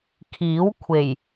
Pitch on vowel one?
rising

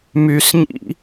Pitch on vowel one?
low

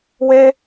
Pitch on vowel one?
high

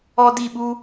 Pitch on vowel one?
high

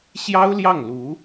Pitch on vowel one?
high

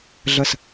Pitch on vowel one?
falling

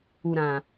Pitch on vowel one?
low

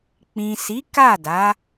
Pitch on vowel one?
low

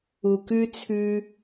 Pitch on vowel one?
low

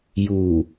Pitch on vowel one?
low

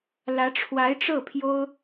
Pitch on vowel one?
rising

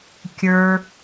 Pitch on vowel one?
high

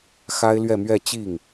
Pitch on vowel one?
high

